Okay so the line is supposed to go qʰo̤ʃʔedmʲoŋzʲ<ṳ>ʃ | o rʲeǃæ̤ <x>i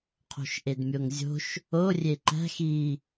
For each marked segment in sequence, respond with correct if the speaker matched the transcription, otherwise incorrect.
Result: incorrect: o̤, correct

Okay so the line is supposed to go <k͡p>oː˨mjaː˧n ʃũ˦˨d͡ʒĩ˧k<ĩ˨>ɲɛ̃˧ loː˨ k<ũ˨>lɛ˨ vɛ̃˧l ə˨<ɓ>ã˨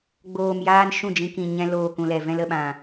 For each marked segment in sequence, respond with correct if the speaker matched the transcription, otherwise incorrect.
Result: incorrect: ɡ͡b, correct, correct, correct

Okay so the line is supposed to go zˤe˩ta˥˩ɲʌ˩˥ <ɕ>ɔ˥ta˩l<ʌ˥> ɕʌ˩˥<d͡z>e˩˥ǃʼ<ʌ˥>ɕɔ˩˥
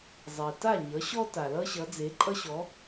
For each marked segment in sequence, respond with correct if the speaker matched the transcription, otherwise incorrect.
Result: correct, correct, correct, correct

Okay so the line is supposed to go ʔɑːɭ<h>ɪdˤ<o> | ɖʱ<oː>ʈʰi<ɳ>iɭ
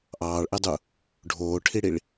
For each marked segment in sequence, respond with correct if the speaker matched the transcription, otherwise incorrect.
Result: incorrect: ʔ, incorrect: u, correct, incorrect: ɽ

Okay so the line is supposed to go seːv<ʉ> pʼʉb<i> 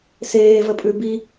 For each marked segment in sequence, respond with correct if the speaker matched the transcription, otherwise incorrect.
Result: incorrect: ə, correct

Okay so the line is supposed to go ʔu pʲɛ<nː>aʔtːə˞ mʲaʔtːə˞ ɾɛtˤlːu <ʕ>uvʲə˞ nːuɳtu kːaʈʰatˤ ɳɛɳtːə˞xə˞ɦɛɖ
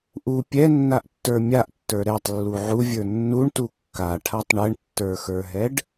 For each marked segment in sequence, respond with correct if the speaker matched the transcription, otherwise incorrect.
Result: correct, correct

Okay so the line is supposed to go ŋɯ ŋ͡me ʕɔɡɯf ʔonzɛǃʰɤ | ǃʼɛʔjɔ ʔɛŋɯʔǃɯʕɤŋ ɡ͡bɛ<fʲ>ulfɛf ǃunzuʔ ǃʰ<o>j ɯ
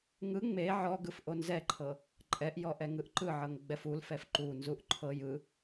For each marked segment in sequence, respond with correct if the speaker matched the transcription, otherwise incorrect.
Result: incorrect: f, incorrect: ɤ

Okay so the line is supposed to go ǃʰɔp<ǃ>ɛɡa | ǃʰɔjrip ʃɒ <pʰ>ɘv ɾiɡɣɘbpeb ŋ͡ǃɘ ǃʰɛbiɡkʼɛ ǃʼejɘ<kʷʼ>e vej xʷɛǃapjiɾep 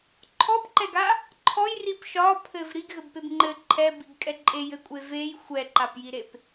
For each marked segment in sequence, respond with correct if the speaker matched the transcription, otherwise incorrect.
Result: correct, correct, correct

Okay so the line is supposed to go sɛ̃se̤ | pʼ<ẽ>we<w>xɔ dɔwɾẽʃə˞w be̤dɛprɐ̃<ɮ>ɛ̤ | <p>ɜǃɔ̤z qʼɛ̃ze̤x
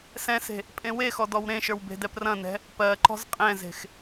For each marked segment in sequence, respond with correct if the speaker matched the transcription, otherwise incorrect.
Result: correct, incorrect: none, incorrect: n, correct

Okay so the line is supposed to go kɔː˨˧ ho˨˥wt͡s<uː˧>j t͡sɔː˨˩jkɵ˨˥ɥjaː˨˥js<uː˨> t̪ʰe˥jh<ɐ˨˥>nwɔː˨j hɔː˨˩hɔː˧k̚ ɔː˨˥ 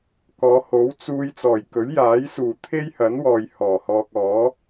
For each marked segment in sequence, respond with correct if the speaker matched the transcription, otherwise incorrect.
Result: correct, correct, correct

